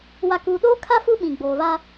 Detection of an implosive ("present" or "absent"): present